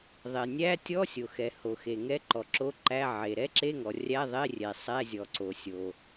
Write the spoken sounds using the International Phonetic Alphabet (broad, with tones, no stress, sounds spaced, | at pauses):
ðˤ e˩ nʲ æ˧˥˧ tʲ ɔ˧˥˧ sʲ o˩ x ɛ˩ h o˩ x e˩ ŋ ɛ˧˥˧ ǃ ɔ˩ ǁ o˧˥˧ ǃ æ˧˥˧ ʕ e˩ ɾ ɛ˧˥˧ ǁ e˧˥˧ ŋ ɔ˩ rʲ æ˧˥˧ ðˤ e˧˥˧ rʲ ɛ˩ sˤ ɛ˧˥˧ zʲ ɔ˩ ǀ o˩ sʲ o˩